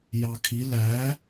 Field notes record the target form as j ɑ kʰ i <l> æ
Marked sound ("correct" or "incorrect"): correct